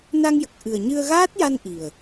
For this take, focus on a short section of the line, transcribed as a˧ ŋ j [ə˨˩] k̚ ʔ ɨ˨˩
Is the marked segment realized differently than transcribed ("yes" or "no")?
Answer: no